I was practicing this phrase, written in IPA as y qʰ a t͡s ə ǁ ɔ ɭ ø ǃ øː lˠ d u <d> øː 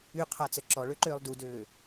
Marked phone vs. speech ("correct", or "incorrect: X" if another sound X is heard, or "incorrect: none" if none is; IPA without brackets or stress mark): correct